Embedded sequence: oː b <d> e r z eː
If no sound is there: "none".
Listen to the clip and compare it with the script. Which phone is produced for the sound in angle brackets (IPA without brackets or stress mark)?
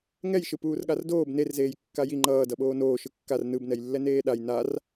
n